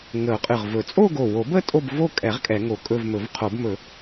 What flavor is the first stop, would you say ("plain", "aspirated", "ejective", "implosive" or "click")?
ejective